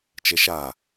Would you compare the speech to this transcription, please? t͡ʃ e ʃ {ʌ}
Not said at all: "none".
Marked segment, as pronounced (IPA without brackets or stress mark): a